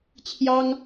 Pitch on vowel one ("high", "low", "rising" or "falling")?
high